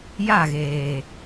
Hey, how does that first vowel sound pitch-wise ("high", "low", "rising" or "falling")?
falling